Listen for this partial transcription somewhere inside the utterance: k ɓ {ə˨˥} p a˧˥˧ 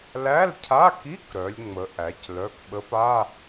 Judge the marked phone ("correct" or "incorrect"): correct